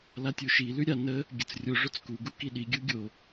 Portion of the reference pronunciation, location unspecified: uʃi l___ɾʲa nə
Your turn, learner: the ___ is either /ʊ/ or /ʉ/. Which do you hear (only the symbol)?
ʉ